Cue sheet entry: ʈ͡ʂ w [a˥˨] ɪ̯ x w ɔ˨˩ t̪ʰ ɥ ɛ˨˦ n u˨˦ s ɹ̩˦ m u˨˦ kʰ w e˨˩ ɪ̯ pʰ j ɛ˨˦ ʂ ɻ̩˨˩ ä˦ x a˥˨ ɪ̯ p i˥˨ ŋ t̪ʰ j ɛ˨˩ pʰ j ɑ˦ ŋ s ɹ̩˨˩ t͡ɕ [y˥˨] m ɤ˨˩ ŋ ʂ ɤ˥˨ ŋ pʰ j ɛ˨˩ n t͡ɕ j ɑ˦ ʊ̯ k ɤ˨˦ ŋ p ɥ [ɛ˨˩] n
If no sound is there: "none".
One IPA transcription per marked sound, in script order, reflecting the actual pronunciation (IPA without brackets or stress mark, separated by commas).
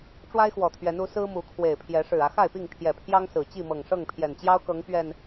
a˦, i˥˨, ɛ˨˩